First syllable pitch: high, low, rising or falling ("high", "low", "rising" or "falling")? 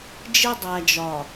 high